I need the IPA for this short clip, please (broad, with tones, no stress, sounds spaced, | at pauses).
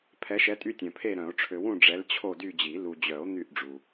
pʰ ɛ˨˦ ʃ ɛ˨˦ tʼ y˦˨ tʲ œ̃˨ pʰ e˦˨ ɾ œ̃˨˩˦ o̯ ʈ͡ʂʰ ø˨ w ũ˦˨ ɖ͡ʐ ɛ˨˦ l t͡ɕʰ o˦˨ d y˦˨ d͡ʑ i˨˩˦ l u˨ d͡ʑ œ˨˩˦ o̯ n̪ y˦˨ ʔ ɖ͡ʐ u˨